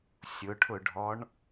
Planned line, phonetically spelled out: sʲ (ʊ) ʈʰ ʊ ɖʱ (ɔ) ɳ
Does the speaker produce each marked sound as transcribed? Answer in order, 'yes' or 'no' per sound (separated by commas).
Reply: yes, yes